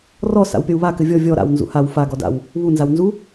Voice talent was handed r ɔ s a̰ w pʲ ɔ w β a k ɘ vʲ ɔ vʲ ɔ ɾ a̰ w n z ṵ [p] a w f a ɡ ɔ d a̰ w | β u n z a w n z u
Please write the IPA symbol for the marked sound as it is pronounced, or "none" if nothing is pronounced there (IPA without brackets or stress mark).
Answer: h